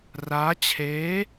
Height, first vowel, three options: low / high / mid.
low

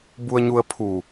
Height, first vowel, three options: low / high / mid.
high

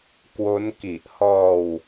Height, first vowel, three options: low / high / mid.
mid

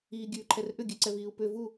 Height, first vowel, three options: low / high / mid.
high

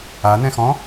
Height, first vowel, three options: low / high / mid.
low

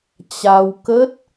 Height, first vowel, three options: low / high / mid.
low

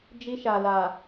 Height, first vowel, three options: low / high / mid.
high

